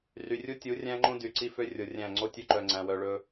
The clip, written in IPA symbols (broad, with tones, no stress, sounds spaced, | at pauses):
r y˨ rʲ u˦ tʲ u˨˦ rʲ æ̃˦ ŋ͡ǃ õ˦ d y˨ ǀ i˦ f ø˦ rʲ o˨ rʲ æ̃˦˨ ŋ͡ǀ o˦ tʲ ø˦ ǃ œ˨ ŋ͡ǀ æ̃˨ w œ˨ ɭ ɵ˦